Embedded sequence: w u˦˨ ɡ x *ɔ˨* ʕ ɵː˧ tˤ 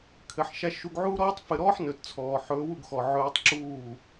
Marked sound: correct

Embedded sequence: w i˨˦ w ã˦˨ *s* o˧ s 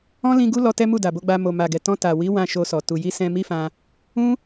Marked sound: incorrect: ʃ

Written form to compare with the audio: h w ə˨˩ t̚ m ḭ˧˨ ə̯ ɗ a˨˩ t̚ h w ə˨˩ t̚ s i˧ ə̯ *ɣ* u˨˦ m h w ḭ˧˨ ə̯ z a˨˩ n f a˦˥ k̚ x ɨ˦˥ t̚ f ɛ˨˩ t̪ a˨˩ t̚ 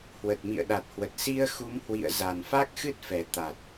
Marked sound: incorrect: x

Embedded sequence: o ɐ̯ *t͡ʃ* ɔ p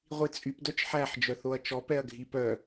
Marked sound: correct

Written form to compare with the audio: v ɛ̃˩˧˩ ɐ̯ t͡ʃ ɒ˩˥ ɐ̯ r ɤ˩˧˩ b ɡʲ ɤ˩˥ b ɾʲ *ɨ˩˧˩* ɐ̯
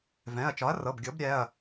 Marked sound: incorrect: ɛ˩˧˩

